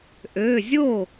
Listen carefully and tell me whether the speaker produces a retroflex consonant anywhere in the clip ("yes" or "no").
no